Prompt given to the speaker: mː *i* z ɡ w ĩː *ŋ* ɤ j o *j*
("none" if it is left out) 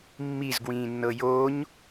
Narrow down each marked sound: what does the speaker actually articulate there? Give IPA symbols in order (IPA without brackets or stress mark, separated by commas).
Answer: i, nː, ɲ